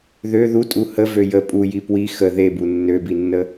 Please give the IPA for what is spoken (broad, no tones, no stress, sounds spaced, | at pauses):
ð ø ð u tʼ u h ə v ø j ə pʼ u j i p w i x ə ð e b u nː ø b i nː ə